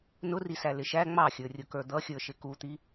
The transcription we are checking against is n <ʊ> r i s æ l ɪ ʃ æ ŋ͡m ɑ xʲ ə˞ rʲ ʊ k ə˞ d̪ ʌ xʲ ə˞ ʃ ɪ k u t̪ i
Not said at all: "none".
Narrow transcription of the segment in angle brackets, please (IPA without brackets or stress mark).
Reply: ʊ